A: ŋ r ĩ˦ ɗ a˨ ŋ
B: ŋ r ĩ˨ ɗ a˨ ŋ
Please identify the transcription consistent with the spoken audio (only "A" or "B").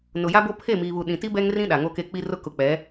A